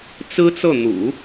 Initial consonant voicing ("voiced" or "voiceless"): voiceless